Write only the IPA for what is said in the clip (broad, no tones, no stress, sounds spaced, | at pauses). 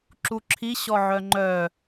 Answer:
ǁ u ǁʰ i ɕ ɔ ʕ œ ŋ͡ǃ œ